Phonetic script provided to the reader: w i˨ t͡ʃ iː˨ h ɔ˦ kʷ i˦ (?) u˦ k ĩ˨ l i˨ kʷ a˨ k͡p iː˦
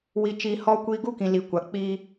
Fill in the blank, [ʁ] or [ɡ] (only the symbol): ɡ